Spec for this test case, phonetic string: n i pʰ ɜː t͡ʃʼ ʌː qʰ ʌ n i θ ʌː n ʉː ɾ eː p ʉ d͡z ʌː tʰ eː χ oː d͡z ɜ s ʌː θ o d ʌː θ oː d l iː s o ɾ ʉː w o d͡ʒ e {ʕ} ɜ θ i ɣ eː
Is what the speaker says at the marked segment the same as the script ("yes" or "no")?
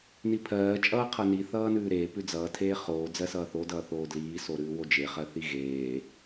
no